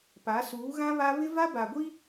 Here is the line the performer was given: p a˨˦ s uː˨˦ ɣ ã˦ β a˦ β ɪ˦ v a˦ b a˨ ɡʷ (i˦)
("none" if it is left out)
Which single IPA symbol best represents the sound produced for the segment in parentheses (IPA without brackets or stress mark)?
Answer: i˦